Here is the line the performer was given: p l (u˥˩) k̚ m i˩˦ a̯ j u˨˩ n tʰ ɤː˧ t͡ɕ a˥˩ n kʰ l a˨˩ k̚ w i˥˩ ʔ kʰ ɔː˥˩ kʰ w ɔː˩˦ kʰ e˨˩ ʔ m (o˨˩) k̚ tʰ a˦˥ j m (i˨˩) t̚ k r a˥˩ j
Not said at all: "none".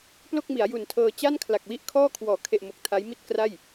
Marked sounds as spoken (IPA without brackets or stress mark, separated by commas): o˥˩, o˨˩, i˥˩